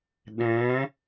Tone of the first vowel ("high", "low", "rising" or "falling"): rising